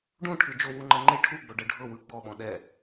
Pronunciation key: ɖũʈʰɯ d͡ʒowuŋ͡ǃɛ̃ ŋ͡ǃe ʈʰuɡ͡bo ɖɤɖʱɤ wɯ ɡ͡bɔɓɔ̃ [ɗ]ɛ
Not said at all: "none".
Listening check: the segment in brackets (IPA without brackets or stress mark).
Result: ɗ